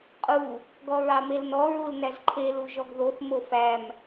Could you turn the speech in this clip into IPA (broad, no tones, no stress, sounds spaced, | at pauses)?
qʼ u | ɡ ɔ ɹ ɑ m e l n ɔ ɹ u l n æ z ǃʰ e l u ʒ ɔ ɡ ð o θ m o f æ m